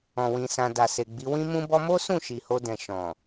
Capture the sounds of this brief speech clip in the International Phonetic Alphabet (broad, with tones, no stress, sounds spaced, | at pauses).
ɔ̃˨ w ĩ˨ s ã˧ d a˨ s e˨ ɡ͡b i˨˦ w ĩ˦ m ũ˦ b ɔ˦ m o˦ s ũ˦˨ ʃ i˨ h o˧ d ɛ̃˨ ʃ ɔ̃˨